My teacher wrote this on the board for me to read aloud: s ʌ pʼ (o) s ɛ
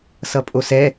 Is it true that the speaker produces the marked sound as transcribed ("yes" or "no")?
yes